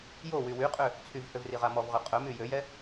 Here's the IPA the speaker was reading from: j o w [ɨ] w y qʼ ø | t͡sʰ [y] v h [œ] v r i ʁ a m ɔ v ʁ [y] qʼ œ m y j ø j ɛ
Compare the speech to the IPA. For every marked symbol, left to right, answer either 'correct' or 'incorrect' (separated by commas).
incorrect, correct, incorrect, incorrect